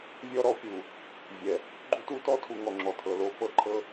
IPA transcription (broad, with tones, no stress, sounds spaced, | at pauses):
vʲ ɔ˦ ɾ ɔ˦ pʲ u˨ | vʲ ɛ˨ | ɡ͡ǃ u˦ t u˦ t ɔ˦ tʰ u˨ ŋ ɔ˨ ŋ͡ǁ ɔ˨ tʰ ɤ˨ l o˦ f ɤ˦ ǃʰ ɤ˦